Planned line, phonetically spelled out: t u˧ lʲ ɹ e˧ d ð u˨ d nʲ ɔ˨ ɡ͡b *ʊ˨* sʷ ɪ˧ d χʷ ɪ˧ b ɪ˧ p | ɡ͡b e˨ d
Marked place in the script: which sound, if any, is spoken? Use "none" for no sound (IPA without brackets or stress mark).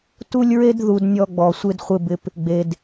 ɔ˨